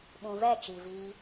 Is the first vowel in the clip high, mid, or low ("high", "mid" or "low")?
high